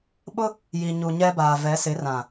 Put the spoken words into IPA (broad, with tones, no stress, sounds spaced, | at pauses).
ɓ ʊ˦ | j i˨ ɲ u˨ ɲ ɛ˦ b aː˨ v ɛ˨˦ s ɪ˨˦ r ã˨